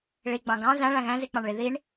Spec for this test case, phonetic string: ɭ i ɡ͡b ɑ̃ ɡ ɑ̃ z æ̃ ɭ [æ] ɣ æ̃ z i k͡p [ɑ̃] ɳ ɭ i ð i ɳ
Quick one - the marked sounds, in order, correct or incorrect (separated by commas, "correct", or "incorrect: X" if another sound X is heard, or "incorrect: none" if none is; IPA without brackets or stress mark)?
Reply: incorrect: æ̃, correct